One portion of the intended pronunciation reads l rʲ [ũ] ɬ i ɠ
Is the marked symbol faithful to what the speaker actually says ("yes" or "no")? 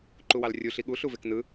no